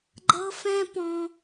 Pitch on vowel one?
high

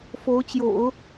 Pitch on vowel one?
rising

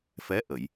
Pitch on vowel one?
rising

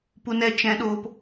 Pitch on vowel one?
high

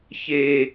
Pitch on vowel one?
low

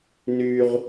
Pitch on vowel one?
low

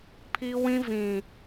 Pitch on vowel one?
high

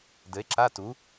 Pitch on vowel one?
rising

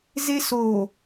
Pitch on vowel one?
high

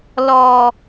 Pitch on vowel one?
high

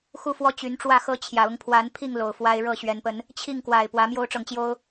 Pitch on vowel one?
falling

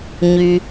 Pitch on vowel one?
low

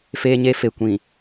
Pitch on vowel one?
high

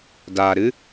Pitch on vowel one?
low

